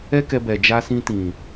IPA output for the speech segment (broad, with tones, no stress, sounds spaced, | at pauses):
ɛ˦ k ɛ˧ b ɛ˨ d͡ʒ a˧ s ĩ˧ t ĩ˨